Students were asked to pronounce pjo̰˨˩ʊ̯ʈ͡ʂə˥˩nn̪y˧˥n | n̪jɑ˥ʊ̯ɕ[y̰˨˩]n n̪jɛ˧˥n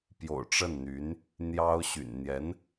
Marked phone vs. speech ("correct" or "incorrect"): correct